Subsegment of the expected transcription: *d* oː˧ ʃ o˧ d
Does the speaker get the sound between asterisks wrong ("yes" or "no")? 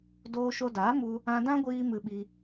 no